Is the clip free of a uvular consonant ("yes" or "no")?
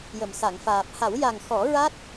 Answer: yes